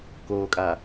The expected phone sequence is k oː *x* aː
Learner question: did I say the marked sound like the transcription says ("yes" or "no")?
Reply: no